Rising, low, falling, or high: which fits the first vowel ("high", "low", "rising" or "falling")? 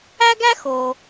high